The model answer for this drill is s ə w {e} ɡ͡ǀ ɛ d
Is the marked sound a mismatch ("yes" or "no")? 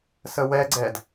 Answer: yes